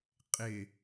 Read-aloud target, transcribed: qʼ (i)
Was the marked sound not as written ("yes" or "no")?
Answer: yes